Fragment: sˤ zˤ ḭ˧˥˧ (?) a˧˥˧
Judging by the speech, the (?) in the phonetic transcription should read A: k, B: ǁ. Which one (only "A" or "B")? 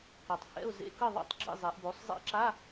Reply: B